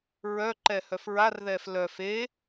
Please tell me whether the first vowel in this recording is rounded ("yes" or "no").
yes